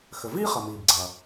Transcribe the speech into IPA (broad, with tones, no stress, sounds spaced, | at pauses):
x ɘ˩ v iː˥ χ ɐ˩ m iː˩ b ɡ͡ǀ ɐ˩